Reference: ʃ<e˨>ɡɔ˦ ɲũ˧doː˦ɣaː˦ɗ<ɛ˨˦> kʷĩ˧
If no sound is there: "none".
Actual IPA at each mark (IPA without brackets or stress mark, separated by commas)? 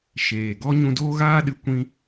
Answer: eː˨, ɨ˨˦